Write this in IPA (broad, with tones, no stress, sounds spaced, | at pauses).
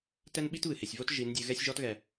t ɛ˦ n ɓ i˦ t β ɨ˨ h e˨ sʲ v o˦ t ʒ i˨˦ n dʲ ɨ˨˦ ɣ ɛ˦ sʲ ʒ ɔ˦ t ɣ ɛ˨